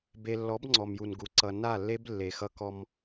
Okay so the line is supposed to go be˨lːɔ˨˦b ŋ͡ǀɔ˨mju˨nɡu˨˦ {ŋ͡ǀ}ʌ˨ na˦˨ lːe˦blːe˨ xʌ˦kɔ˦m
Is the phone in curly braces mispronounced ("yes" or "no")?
yes